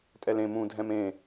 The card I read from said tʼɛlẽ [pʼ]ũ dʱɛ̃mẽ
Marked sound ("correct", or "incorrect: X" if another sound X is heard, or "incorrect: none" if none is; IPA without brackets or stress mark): incorrect: m